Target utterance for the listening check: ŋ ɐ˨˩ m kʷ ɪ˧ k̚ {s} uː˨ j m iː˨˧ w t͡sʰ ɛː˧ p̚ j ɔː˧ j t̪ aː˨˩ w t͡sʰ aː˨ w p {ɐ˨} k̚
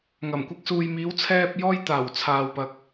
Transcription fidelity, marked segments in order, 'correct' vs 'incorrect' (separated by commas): correct, correct